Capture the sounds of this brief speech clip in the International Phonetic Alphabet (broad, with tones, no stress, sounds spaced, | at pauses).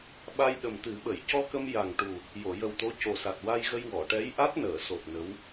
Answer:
ɓ a˧ j ɗ ə˨˩ m t̪ ɨ˨˩˦ ɓ ə˨˩˨ j c ɔ˧ k ə˧ m j a˨˩ ŋ ʈ u˨˩ | j o˨˩˨ j ə˨˩ w t̪ o˧˥ c o˨˩ s a˨˩ t̚ w a˧ j ɣ ə˧ j w ɔ˨˩˨ ʈ ɛ˧˥ j ʔ a˦˥ t̚ n əː˨˩˨ s o˨˩ t̚ n ə˧˥ w